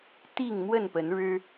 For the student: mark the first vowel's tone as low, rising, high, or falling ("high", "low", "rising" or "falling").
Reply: falling